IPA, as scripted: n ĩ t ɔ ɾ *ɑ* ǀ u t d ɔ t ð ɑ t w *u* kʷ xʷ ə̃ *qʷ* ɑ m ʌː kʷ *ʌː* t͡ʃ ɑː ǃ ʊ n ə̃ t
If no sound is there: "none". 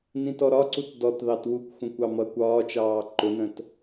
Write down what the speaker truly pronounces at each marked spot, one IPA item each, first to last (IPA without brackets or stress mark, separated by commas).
ɒ, u, kʷ, ɒː